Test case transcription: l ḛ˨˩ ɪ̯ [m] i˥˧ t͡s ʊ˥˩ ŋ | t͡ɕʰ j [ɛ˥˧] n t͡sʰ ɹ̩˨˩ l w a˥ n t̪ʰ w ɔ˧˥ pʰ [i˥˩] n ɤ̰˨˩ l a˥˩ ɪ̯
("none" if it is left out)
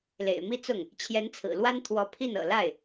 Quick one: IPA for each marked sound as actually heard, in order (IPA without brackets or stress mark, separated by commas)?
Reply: m, ɛ˧˥, i˥˩